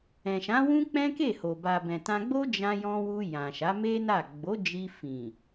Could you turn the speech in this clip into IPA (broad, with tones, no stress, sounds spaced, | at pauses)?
ɛ̃˨ ʃ ã˨˦ w ũ˦ k͡p ɛ̃˦ k e˦˨ h o˨ b a˨ b ɛ̃˨ t ã˧ ɡ͡b o˦ d͡ʒ ã˧ j ɔ̃˧ w u˧ j ã˨ ʃ a˨˦ m e˦ n a˦˨ ɡ͡b o˨˦ d͡ʒ i˧ f ĩ˨